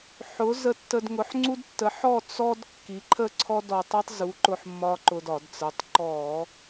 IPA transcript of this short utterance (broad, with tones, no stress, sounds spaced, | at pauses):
ħ ʊ˩˥ z ə˧ tː ə˧ d ŋ ʊ˩˥ ħ ŋ͡ǀ u˥ d tː ə˩˥ ħ ɔ˥˨ t͡s ɔ˥ d kː i˩˥ ǃʰ ə˥˨ ǀʰ ɔ˥ d ɔ˧ tˤ i˥ tˤ z u˩˥ ǃ ʊ˧ ħ mː ɒ˧ ǃ ʊ˧ d ɒ˧˩˧ d t͡s ə˩˥ tˤ ǃ ɔ˧˩˧